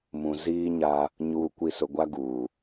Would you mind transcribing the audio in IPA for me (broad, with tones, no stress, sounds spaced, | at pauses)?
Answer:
m ũ˨ z iː˦ ɲ a˦ | ɲ uː˨ kʷ i˨ s ʊ˨ ɡʷ a˦ ɡ uː˨